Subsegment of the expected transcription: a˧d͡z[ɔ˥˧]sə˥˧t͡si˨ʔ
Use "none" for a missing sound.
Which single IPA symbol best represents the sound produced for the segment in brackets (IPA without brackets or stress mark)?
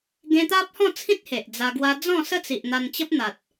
ɔ̃˥˧